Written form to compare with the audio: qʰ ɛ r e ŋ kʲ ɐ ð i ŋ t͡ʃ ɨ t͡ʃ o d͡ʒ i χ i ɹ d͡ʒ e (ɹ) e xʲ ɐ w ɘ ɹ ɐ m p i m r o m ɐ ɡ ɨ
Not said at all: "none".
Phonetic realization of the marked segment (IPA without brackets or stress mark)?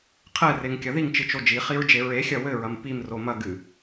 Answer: ɹ